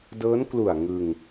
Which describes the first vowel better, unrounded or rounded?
unrounded